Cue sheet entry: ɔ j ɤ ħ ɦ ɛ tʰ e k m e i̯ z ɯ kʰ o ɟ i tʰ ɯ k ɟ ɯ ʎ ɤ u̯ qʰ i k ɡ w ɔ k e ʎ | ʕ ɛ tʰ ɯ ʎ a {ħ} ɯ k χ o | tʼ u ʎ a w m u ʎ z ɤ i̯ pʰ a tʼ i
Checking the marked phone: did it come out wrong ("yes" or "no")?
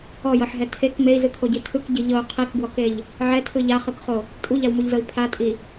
yes